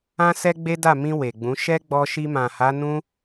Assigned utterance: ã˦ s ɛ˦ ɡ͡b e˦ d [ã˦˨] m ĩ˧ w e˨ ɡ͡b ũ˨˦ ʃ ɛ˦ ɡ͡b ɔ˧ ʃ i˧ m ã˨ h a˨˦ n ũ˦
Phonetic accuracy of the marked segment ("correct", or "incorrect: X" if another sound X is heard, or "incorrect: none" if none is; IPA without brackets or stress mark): incorrect: a˦˨